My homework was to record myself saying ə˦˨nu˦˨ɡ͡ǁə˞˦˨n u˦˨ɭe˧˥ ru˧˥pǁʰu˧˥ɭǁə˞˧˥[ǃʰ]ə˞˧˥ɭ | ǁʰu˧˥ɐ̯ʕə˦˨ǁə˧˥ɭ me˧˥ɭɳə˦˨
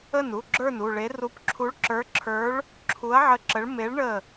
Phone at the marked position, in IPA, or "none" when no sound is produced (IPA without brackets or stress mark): ǁʰ